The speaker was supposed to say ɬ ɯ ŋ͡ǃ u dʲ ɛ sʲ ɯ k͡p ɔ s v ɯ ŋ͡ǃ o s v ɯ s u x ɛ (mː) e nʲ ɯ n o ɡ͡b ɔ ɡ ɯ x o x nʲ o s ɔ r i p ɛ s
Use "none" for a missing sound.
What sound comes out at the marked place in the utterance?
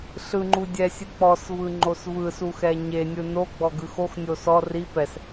ɲ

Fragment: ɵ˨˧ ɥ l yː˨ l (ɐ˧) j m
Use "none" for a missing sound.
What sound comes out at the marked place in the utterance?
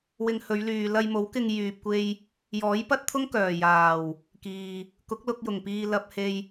ɐ˧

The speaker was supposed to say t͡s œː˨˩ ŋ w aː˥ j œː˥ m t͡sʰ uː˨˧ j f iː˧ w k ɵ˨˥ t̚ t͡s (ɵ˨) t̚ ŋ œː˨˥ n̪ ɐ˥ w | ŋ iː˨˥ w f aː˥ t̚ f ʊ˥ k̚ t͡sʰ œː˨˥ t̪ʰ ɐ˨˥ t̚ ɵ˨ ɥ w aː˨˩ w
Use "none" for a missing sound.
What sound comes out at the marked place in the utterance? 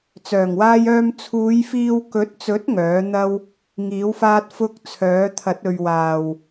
ɵ˨˥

